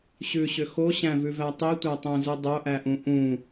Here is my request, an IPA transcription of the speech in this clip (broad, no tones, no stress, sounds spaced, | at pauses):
ɕ ʉ ɕ ʏ x o ɕ æ̃ v ʉ v æ tˤ i tʷ æ tˤ æ̃ z u dˤ o ʔ æ ʔ ũ ʔ ũ